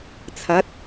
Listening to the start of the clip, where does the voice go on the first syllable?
rising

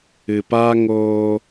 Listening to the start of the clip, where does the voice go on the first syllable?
low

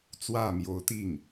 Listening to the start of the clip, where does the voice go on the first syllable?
falling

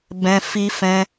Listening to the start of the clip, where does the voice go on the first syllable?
high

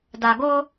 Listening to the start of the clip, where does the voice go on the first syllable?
low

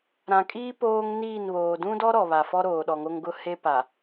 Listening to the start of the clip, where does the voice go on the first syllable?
low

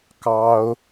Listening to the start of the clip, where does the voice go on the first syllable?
high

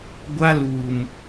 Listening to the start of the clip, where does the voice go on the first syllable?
high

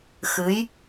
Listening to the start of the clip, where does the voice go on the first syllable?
rising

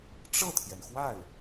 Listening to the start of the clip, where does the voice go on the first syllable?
falling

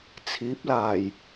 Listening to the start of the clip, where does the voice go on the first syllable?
rising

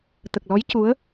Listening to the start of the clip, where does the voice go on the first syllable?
low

